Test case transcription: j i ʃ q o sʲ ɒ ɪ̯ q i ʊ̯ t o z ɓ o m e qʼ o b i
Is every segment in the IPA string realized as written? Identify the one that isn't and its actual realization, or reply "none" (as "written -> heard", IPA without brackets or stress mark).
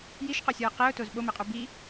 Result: none